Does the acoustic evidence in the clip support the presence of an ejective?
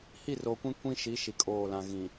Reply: yes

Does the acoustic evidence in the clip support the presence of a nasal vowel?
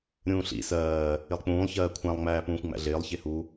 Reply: yes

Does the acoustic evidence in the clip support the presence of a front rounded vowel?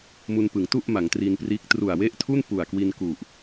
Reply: no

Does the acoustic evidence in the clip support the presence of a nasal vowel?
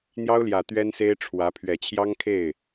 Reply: no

